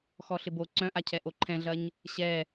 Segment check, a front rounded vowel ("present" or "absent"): present